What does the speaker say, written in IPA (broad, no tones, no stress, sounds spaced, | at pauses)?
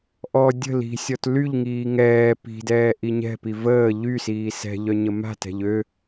ʔ ɔ dʲ ə̤ l i̤ sʲ ɔ t l y ʎ ŋ iː ŋ ɛː p i̤ d ɛː ʔ i ɲ ɛ̤ p i v əː ʎ y s iː s ɛ̤ ʎ œ ɲ ə m a̤ t ɛ̤ ʎ ø